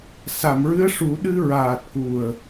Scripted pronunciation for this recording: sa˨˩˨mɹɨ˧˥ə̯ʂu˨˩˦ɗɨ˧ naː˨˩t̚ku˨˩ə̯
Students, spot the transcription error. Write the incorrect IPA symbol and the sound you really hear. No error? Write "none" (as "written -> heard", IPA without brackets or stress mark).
n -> ɹ